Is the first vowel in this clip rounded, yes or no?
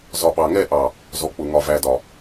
yes